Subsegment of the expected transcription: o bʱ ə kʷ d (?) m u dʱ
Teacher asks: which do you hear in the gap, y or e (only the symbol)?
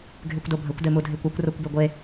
e